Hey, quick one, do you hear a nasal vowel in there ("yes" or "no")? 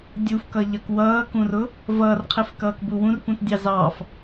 yes